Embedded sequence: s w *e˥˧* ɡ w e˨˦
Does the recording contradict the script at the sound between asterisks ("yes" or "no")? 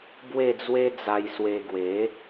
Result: yes